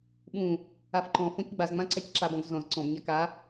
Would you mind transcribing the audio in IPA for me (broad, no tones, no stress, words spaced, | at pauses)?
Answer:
ɓũ | afǃɔ̃fɔ̃c ɡ͡bazŋ͡mã ǀacǁabɔ̃ɡ zɔ̃z ǀɔ̃bɲa ka